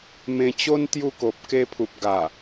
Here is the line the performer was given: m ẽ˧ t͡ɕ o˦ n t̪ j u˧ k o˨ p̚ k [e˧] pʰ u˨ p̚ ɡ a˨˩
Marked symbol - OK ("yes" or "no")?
yes